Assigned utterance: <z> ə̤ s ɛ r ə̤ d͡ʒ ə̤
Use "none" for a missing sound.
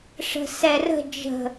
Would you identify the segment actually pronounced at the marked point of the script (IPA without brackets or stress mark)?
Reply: ʂ